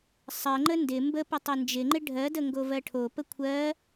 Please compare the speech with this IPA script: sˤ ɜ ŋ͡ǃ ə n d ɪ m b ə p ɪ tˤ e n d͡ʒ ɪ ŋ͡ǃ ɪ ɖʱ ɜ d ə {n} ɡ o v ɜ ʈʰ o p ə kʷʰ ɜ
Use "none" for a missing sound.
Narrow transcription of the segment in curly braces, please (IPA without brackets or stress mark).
ŋ